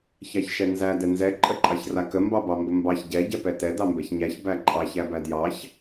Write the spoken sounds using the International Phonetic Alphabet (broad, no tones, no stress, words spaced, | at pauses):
çɑçʃɛnzæ dɛnzɛ ǃʼəǃʼɑçrakə mbɑbɑmbəmbɑç ɟɛ ɟɛpɛtɛ dɑmbɛçɲæç bæǃʼɑç æbædjɑç